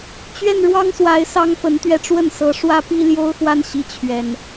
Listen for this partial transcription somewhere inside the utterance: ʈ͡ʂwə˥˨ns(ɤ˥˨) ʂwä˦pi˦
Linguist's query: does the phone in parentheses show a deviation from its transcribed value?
yes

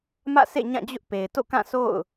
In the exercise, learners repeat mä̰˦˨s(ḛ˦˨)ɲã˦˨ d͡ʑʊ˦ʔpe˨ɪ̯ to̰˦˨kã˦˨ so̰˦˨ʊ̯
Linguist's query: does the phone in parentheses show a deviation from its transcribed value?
no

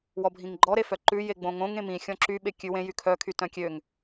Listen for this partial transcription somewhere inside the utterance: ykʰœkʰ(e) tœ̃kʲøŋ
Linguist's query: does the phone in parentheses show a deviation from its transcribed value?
yes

